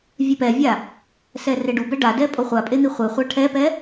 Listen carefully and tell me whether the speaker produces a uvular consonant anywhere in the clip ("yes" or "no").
yes